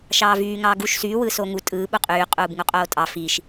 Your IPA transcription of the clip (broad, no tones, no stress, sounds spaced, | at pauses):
ʃ ɑː v yː ŋ ɑː ɡ u ʃ s yː w ɯː s oː ŋ u tʼ ɯː ɓ u qʼ yː qʼ uː b ŋ u qʼ oː tʼ ɑ f i ʃ